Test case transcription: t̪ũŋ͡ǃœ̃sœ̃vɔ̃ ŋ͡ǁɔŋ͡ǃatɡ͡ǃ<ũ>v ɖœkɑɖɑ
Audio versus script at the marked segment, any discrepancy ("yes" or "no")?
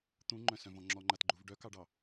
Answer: yes